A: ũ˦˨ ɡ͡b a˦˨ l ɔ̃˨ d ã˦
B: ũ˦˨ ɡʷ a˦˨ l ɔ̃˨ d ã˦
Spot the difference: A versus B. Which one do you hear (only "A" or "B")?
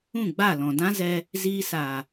A